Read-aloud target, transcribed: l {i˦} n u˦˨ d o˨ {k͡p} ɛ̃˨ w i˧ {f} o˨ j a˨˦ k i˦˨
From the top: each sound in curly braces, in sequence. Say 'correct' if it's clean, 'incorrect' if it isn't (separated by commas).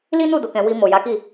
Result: correct, incorrect, incorrect